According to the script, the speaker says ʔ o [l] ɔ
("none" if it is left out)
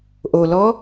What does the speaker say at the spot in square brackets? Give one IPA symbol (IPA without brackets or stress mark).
l